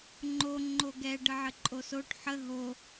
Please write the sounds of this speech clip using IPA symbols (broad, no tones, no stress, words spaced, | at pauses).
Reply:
ŋ͡ǃo ŋ͡ǃoɡɛ ɖəʕəǃʼosoʈ ħə ɦo